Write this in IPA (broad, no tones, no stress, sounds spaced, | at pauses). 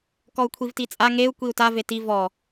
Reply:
k ɔ u̯ kʷʰ i v t i t͡sʼ a ŋ e u̯ kʷ i u̯ t a v e t i v ɔ